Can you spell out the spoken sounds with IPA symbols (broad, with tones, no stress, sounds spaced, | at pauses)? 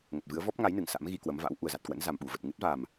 ŋ ə˨˩ t̚ v ɨ˨˦ ə̯ v ɔ˦˥ p̚ ŋ a˨˦ j n ɨ˧˩ ŋ s a̰˧˥ m ɣ i˧ k w ə˨˦ m v a̰˧˥ w ʔ u˨˩ ə̯ z a˨˩ t̚ k w ə̰˧˥ n z a˨˩ m ɓ u˧˩ v ə˨˩ t̚ ŋ ɨ˦˥ t̚ v a˨˩ m